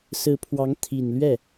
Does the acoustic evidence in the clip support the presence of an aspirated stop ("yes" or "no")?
yes